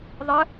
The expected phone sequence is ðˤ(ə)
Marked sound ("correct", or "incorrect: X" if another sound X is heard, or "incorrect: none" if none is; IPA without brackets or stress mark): correct